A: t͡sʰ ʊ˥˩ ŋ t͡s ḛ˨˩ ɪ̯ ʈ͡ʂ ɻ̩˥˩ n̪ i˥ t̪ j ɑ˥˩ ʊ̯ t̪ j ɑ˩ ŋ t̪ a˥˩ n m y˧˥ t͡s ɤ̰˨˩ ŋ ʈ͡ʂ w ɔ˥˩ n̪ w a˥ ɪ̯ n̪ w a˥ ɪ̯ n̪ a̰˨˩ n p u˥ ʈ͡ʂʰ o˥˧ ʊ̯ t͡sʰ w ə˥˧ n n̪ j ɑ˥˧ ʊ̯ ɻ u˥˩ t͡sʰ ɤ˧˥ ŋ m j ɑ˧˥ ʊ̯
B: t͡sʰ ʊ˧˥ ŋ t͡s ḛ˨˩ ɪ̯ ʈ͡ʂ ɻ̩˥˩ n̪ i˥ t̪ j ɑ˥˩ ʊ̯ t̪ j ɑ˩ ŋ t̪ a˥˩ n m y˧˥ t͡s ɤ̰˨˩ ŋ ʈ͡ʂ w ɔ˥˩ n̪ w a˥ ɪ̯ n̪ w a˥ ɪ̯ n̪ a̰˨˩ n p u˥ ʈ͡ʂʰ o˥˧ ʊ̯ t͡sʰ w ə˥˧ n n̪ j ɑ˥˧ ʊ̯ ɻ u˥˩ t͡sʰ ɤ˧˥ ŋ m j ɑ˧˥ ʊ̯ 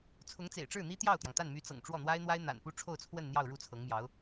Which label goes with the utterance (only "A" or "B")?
B